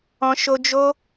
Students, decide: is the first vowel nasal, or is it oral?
nasal